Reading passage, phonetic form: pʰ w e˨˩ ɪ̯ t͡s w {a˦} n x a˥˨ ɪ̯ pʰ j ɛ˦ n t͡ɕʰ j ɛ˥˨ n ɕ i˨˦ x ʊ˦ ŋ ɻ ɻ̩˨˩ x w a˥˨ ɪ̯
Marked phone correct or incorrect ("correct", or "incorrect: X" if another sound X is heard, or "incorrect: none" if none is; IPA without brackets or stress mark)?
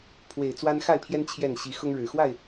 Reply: correct